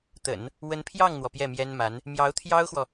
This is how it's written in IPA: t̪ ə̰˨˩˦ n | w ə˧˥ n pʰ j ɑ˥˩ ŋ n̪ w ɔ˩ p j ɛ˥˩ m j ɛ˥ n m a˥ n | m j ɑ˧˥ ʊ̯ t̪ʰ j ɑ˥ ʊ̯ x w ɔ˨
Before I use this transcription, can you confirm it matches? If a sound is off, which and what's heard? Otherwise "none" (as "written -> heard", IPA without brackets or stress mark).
a˥ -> a˧˥